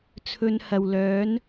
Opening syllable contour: low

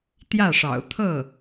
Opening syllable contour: falling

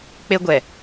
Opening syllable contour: high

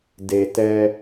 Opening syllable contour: low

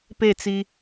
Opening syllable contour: falling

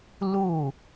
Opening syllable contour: falling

